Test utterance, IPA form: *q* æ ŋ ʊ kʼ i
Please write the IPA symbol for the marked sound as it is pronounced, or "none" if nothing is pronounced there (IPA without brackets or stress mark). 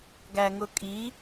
ɡ